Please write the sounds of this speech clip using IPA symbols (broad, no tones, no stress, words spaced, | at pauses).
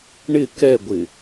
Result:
ɳɪ kɛɡʷɪ